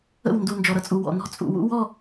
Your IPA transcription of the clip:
ə̰˦˨ w n d u˨ n d͡ʒ ɔ˨ ɾ ʌ˨ t͡sʼ u˨ w ɔ̰˨ n ɔ̤˦ t͡sʼ ṵ˨ w ṵ˦ w ɔ˦˨

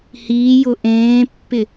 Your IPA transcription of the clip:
h iː j ʊ ʔ ẽː pː ɪ

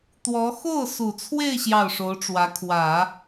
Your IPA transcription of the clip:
t̪ w ɔ˧˥ x o˥˩ ʊ̯ s u˨˩ t͡sʰ w e˥˧ ɪ̯ ɕ j ɑ˥˩ ʊ̯ ʂ o˧˥ ʊ̯ ʈ͡ʂ w ä˧˥ kʰ w ä˨˩˦

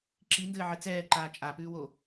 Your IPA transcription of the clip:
ǁ i n d ɘː ʕ ɘ t͡s ɛː ǃ aː t͡ʃʼ a p ʉː w o

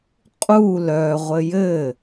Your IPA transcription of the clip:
qʼ u l œ ʁʷ ɘ j ɘ

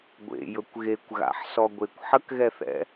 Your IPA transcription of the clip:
ɡʷ ḛ j ɵ kʷ ɣ e kʷ ɣ a̰ ħ s ɔ ɡʷ e kʷ ħ ə k ɣ ɛ θ ɛ̰

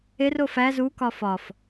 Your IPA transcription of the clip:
e r o f æ z u k ɒ f ɒ f

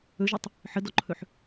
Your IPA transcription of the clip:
ɵ ʒ ɵ tˤ | ħ ə d ɔ ǃʰ ɵ ħ

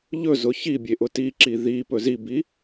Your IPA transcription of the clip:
ʎ ɵ z ʊ ç i bʲ e ʔ ʊ t i ǁ i ð i p ɵ z i b i

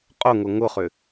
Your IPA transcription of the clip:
qʼ ʊ ŋ ʊ ŋ ʊ χ ʏ

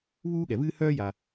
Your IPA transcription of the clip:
β uː˥ ɠ ɛ˩ v ɨː˥ h œː˥ j a˩

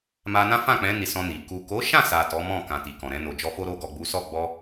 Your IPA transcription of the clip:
m a˧ n ã˦ f ã˦˨ k͡p ɛ̃˨˦ n i˧ s ɔ̃˧ n i˨ k u˨ k o˨˦ ʃ ã˦˨ s a˨ t ɔ˨˦ m ɔ̃˦˨ k ã˧ t i˨ k ɔ̃˨ ɾ ɛ̃˧ n o˨ d͡ʒ ɔ˧ f o˦ ɾ o˧ ɡ ɔ˨ ɡ͡b u˨˦ s ɔ˦˨ ɡ͡b ɔ˧

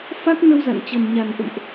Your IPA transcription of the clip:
f a˦˥ k̚ n ə˧ w z a̰˧˨ n t͡ɕ ə˨˩ n ɲ a˨˩ n ʔ ə̰˧˨ m ʔ

